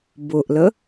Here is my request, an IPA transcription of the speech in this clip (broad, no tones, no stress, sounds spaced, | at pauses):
b ʊ ʔ l ə